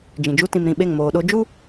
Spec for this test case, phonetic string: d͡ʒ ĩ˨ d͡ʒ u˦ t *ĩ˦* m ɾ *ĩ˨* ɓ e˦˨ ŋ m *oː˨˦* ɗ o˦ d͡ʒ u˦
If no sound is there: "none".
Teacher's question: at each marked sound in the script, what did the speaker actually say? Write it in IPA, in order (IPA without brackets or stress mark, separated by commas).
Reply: ĩ˨, ĩ˨, oː˨